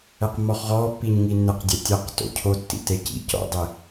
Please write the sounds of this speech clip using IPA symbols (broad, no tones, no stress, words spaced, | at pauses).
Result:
ɛqmːɔχʁɔː pːiɲŋinːɘq dʲɐtʲɐq to̰cʰotːḭ tecḭ cɔ̰dˤe